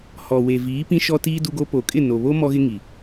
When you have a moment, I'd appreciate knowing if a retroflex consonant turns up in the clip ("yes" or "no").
no